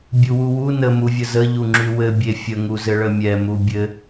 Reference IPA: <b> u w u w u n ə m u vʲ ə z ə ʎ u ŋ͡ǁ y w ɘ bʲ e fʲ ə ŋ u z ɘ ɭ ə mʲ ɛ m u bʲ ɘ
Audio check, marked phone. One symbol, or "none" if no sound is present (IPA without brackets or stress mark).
bʲ